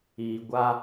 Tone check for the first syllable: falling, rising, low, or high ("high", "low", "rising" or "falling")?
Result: low